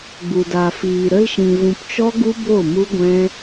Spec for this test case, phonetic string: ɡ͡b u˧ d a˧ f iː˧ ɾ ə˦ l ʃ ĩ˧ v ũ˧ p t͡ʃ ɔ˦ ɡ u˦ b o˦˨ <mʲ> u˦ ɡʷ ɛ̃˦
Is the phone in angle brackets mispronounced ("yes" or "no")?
yes